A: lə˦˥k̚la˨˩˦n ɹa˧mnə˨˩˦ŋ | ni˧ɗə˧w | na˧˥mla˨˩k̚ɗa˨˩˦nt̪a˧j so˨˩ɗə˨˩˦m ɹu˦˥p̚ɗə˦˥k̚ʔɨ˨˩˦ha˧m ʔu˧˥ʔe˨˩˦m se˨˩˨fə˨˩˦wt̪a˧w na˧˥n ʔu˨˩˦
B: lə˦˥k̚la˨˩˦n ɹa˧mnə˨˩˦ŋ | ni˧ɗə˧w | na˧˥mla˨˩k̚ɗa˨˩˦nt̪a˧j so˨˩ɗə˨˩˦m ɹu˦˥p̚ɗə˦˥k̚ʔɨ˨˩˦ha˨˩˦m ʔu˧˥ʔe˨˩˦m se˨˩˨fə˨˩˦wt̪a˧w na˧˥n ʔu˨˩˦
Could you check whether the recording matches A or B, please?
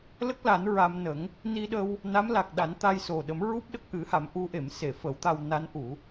B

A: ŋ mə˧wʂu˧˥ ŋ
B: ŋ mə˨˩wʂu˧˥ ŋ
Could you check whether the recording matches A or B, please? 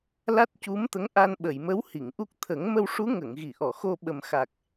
A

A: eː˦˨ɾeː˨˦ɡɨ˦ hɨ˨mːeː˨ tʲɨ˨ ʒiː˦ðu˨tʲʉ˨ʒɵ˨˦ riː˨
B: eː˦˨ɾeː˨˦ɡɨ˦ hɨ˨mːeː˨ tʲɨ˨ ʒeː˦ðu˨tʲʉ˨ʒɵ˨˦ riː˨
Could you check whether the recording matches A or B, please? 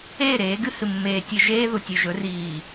B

